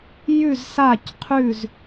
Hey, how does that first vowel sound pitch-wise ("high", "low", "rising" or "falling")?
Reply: falling